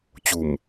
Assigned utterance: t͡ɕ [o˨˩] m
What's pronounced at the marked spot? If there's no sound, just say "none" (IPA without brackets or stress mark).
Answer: u˨˩